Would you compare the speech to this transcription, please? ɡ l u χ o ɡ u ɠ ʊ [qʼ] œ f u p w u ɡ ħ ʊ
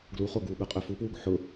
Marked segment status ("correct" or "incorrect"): correct